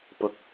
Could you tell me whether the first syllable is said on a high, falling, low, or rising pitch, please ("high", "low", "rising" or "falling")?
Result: low